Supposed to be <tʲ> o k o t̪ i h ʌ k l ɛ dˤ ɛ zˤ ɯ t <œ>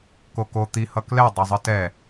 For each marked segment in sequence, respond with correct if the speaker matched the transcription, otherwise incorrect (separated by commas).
incorrect, incorrect